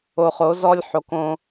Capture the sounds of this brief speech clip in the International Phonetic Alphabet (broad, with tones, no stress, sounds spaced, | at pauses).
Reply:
o˨ χ o˨˦ z ɔ˦ lʲ ħ o˨ k õ˦